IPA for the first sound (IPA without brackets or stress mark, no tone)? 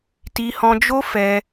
t